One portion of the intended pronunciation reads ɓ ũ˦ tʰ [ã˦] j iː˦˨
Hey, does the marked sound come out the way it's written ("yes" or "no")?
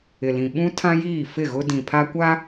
yes